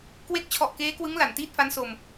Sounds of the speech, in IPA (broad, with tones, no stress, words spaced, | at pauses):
kwe˦˥k̚ t͡ɕʰɔ˨˩ʔkeː˦˥kwɯ˦˥ŋ la˨˩ntiː˥˩t̚fa˦˥nso˧m